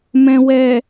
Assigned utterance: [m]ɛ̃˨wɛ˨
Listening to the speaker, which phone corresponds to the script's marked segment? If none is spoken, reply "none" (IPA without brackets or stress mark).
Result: m